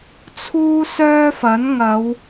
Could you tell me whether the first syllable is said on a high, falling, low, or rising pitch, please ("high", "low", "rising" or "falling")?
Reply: high